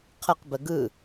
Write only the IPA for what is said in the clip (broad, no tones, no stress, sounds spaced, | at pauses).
qʰ ə q b ə ɡ ɯ